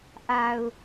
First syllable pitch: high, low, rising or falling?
low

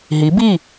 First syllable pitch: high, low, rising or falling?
rising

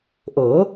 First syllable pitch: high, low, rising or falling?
rising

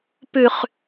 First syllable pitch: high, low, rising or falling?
low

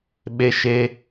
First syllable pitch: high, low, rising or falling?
high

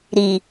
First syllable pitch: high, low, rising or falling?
low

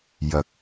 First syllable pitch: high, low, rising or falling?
low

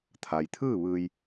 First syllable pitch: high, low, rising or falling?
low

